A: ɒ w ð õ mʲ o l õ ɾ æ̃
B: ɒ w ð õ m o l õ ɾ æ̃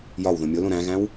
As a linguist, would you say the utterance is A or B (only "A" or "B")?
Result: A